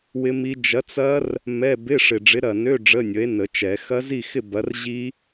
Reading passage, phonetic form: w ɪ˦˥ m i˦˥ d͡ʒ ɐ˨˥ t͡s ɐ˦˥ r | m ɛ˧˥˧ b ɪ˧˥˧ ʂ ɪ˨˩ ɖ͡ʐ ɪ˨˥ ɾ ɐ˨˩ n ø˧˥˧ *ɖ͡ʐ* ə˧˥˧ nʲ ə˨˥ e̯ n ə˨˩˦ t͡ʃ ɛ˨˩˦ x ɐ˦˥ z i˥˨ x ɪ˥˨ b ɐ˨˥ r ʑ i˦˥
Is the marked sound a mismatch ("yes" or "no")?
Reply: no